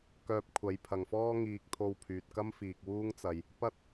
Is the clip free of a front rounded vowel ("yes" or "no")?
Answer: no